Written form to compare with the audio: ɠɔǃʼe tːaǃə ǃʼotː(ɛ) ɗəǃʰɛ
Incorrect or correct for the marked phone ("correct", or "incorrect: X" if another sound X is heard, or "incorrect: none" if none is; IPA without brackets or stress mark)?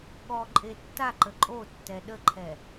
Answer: correct